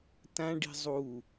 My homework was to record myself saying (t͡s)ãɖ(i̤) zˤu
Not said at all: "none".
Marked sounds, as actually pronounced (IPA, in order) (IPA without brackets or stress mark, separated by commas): t, i̤